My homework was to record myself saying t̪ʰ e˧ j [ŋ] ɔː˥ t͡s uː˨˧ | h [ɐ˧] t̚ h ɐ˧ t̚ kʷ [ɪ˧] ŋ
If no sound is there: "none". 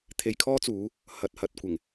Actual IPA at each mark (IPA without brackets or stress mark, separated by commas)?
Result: kʰ, ɐ˧, ɪ˨˩